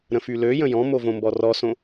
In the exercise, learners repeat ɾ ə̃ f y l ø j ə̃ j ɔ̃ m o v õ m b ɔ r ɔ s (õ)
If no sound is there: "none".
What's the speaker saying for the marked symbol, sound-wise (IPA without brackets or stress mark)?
õ